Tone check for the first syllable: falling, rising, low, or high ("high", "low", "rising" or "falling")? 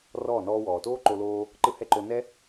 falling